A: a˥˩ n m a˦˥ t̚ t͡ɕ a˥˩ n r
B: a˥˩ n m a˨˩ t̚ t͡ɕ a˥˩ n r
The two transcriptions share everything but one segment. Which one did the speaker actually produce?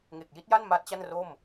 A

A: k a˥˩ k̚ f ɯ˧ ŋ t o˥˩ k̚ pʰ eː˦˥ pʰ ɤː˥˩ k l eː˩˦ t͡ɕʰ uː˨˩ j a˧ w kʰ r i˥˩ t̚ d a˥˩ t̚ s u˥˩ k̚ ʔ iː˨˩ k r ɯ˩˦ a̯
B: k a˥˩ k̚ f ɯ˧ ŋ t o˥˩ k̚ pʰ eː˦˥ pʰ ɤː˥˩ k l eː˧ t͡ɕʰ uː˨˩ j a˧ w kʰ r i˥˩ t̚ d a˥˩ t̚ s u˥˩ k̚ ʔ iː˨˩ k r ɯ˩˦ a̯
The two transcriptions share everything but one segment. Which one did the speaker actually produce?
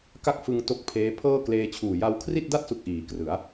B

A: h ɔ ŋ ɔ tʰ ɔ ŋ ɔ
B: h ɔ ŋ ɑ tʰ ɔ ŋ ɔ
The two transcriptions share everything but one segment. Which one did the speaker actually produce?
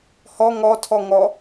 A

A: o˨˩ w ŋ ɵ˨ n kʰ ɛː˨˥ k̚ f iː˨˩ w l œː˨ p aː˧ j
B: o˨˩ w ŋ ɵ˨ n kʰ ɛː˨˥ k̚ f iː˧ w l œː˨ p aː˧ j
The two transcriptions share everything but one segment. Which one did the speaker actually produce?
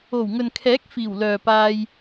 A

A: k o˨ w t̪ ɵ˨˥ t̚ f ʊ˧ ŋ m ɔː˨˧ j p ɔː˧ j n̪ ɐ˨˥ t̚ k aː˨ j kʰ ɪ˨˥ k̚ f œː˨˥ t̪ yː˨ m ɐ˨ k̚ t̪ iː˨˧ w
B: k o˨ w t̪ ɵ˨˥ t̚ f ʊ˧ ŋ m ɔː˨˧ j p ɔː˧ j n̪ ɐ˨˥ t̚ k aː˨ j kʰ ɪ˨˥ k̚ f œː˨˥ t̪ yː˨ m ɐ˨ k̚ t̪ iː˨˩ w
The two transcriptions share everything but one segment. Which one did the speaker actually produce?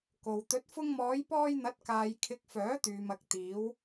A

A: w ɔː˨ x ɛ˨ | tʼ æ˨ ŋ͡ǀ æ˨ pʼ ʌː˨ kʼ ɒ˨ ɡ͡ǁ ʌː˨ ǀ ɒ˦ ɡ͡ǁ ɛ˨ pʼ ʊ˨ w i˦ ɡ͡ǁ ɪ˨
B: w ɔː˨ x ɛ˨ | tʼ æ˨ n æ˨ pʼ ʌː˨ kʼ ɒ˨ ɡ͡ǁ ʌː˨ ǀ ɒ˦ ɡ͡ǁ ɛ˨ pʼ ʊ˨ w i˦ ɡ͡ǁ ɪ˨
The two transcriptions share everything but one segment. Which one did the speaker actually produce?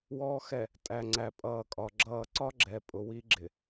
A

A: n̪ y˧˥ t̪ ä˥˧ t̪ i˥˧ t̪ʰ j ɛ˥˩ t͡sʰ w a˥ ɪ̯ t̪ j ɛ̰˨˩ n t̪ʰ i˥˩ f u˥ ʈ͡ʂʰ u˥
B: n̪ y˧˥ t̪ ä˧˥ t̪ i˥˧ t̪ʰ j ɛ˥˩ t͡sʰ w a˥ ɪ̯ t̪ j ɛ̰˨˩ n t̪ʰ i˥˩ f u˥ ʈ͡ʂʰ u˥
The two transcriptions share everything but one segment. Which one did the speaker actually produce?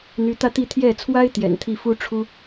A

